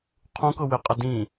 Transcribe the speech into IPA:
qʰ ũ k ɤ w ɪ qʼ ə d ĩ

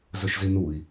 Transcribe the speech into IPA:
z ɵ ʃ z i n u i̯

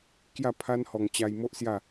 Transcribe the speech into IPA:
k j a˥˧ pʰ a˦ n h ɔ˧ ŋ t͡ɕ a˧ j m o˦ ʔ s j a˥˧

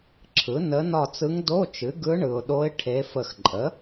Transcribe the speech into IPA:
ǁʰ ɯ˩˥ n ə˧˥ n ɒ˦˨ t͡s ɯ˧˥ ŋ d o˧˥˧ t͡ʃ ɨ˩˥ ɡ ɯ˧˥ ɳ ɯ˨ ʊ̯ ɗ o˧˥ ɪ̯ ʈʰ e˧˥ f ə˦˨ x ǃʼ ə˩˥

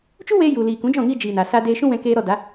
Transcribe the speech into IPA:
t͡ʃ u˦ w eː˧ j u˨ l iː˨ k ũ˨˦ d͡ʒ ɔ̃˦˨ ŋ iː˧ d͡ʒ iː˨ n a˨ s aː˧ d eː˧ ʃ ũ˦ w ɛ̃˧ k eː˧ ɾ ɔ˧ d a˨˦

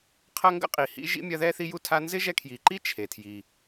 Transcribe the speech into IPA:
qʰ ɐ˦ ŋ ɡ ə̰˦ qʼ i˨ h ḭ˦ ʒ ḭ˥ mʲ ɐ˦ ð ɛ˥ θ i˦ j u˦ tʰ a˦ n z ɪ˥ ʒ ɛ˦ kʰ j i˨ ǃ i˥ t͡ʃʰ e˩ tʰ j i˩

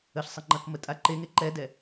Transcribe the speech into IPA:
ə ɬ sˤ ə ŋ͡ǃ ɐ k m ə tʼ a ǃ e ŋ e ǃ ɛ d ɛ

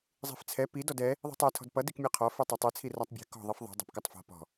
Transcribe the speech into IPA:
zˤ i̤ f t͡sʰ ɛ p i d ɔ d ɛ | ðˤ i̤ tˤ ɛ tʰ ɔ̤ d p ʌ d i k mʲ ɛ qʰ ɔ f i tˤ ʌ tˤ i t͡sʰ i r a tˤ bʲ ɛ̤ k ɔ̤ ðˤ i f ðˤ i̤ dˤ ɛ̤ p k ʌ tˤ f ɔ̤ p ɔ̤

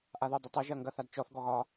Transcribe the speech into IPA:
ʔ a ð o dˤ ɪ tˤ ɐ ʒ ɐ ŋ ɡ ɐ θ a d t͡ʃ ɔ θ ɡ ɔ ɣ ɒ

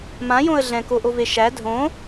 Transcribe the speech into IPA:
m ã j õ ə̯ ɮ ɛ̃ k o ʔ o v e ʃ æ dʱ õ

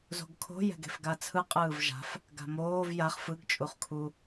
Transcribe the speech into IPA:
z o̤ ɡ kʰ o̤ j ɛ̤ ɡ e̤ f ɡ a t͡sʰ ɯ qʼ ɯː v ʒ a̤ f | ɡ a̤ m oː v j a χ f ɯ ɡ t͡ʃʼ u χ kʰ u

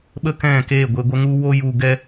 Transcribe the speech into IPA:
ɓ ə˦ k ɛ̃˦˨ k e˦˨ ɡʷ e˧ ɡʷ ə˦ ŋ u˦ w o˦ j u˧ ɡ ɛ˦

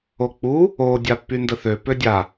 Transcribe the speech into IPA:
o k͡p u | o dʲ a pː y n d ə θ ø p ø dʲ a

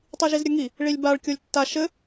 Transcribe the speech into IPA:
tˤ i ʒ i z ɾʲ ɘ ŋ i | ɭ i lʲ b a ɭ kʲ o lʲ tː a ʃ ɘ

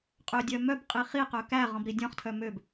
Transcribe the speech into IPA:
qʼ ø dʲ œ m œ b qʼ i χ i q œ k æ ʁ ɔ̃ b ɾ i dʲ ɔ̃ χ tʰ œ m ø b

